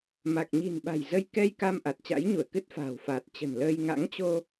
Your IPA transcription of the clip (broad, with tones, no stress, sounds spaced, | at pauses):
m a˨˩ k̚ ɲ i̤˨˩ n ɓ a̤˨˩ j z ə˧ j k ɛ˧ j k a˧ m ʔ a˨˩ t̚ t͡ɕ a̰˧˥ j ɲ u˧˩ ə̯ k ɨ˦˥ t̚ f a̤ː˨˩ w f aː˨˩ t̚ t͡ɕ ə̤˨˩ n l əː˧ j ŋ a̰˧˥ ŋ t͡ɕ o˧